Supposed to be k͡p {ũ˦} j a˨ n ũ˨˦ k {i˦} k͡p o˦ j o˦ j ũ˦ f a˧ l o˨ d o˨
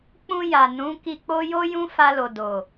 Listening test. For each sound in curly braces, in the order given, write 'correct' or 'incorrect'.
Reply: incorrect, incorrect

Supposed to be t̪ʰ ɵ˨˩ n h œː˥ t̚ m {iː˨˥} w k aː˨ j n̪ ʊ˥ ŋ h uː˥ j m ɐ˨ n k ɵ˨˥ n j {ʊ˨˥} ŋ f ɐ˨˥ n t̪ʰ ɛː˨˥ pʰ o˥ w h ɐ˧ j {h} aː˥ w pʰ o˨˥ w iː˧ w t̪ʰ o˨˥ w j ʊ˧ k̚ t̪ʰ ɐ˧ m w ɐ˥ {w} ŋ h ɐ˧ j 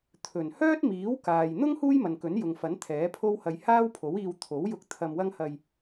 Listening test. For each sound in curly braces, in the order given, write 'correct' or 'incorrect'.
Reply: correct, incorrect, correct, incorrect

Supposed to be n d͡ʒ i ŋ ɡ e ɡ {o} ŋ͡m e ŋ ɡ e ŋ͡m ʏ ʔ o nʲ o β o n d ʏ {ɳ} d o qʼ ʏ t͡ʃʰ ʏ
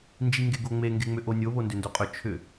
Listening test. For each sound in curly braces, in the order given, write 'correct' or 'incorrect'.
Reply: correct, incorrect

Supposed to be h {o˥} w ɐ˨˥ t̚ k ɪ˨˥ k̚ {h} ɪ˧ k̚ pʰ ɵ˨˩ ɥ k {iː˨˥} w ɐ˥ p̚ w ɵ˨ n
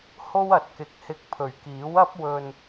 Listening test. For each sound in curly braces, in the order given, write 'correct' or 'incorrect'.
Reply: correct, correct, correct

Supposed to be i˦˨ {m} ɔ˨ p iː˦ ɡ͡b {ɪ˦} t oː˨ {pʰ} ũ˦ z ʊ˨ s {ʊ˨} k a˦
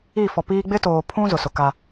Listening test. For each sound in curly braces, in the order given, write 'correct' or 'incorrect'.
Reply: incorrect, correct, correct, correct

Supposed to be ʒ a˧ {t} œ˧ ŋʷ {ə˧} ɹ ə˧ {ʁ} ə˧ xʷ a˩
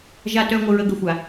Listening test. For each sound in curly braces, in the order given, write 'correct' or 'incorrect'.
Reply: correct, correct, incorrect

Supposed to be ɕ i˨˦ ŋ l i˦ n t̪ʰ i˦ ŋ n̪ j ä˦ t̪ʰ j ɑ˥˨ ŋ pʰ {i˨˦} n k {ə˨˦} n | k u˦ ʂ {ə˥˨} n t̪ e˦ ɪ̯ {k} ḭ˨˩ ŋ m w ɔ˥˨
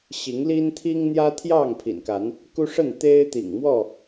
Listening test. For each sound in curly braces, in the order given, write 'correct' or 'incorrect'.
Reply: incorrect, incorrect, correct, incorrect

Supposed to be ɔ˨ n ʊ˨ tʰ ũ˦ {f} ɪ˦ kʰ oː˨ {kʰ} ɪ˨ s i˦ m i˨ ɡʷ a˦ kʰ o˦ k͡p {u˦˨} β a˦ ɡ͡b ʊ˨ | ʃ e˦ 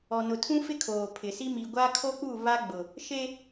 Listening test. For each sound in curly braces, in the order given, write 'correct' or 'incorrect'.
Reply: correct, incorrect, correct

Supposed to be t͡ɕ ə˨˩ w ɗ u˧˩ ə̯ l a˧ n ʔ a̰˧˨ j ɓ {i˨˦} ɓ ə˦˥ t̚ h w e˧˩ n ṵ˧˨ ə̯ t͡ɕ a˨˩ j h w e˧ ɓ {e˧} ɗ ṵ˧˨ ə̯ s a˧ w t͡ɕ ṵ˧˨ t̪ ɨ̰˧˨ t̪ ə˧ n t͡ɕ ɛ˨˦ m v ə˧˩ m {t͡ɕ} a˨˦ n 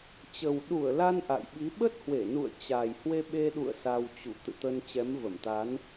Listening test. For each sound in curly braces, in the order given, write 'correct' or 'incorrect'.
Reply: correct, correct, incorrect

